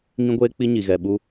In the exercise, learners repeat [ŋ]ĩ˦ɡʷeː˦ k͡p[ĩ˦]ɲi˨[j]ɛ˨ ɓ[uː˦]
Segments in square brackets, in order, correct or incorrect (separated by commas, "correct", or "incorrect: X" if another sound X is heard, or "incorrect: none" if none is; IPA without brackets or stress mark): correct, incorrect: i˦, incorrect: ɣ, incorrect: u˦